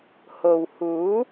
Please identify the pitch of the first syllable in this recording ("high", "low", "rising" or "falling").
low